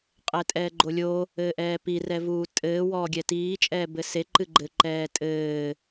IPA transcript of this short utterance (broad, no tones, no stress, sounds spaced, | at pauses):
qʼ ɛ tʼ ɛː ɡ͡ǃ o lʲ o | ɘː ʔ ɛː p i r ɛ v uː tʼ ɘː w ɔː ɡʲ ɛ t iː t͡ʃʼ ɛː b ɘ s e ǃ ɨ ɡ͡ǃ ɘ ǃ ɛː tʼ ɘː